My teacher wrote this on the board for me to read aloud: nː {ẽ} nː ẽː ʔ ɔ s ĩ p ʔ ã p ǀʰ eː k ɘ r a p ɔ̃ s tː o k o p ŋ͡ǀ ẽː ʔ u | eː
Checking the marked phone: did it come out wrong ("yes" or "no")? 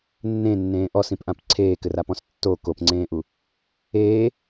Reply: no